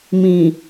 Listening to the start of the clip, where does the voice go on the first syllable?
low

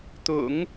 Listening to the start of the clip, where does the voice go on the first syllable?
low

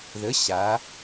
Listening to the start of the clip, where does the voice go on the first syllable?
rising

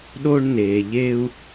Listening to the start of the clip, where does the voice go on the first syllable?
high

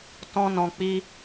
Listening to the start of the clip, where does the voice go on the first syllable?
high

